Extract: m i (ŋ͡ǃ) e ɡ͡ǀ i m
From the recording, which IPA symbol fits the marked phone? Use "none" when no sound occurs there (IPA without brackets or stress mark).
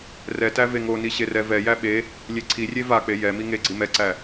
ŋ